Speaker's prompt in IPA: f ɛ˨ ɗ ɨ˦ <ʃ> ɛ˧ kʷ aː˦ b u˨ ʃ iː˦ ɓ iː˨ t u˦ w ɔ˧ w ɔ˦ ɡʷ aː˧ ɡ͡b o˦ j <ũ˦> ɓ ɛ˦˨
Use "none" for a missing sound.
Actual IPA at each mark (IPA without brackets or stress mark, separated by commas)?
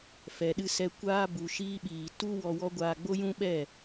s, ũ˦